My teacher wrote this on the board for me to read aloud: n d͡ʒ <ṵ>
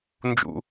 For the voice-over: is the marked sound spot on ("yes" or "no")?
yes